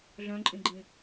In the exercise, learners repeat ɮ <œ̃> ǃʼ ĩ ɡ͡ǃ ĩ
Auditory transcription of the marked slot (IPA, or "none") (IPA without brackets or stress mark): œ̃